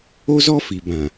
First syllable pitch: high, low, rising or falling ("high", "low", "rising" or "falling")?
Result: high